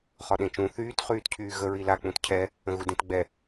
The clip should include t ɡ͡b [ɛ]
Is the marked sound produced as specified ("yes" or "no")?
yes